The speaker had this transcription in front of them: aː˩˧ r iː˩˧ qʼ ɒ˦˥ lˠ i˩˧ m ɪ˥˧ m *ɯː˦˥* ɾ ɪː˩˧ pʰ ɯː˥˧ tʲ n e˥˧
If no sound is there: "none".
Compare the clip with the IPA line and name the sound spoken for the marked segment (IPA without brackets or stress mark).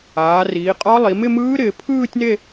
ɯː˦˥